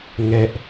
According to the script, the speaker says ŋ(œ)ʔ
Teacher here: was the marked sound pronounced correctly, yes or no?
no